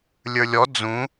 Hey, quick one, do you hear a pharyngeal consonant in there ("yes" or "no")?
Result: no